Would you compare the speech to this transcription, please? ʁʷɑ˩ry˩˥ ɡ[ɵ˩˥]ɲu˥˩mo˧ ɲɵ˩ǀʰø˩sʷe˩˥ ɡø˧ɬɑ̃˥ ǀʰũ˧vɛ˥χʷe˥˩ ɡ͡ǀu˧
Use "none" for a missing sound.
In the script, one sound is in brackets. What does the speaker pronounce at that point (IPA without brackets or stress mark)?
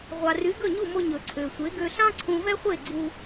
ɵ˥˩